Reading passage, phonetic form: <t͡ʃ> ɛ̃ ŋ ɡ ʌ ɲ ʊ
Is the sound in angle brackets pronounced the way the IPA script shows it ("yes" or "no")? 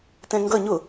no